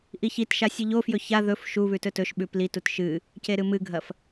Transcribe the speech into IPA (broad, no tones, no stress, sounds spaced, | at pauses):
ʔ i ç i t ʃ a sʲ ɨ ʎ o f j ɵ ç a ð ɵ f ʃ u β ʉ t ɵ t ɵ ʃ ɓ ʉ p l i t u t ʃ ɨ | c e ɾ ɨ m ɨ ɡʱ ɐ f